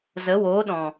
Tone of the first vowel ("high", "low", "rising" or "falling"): rising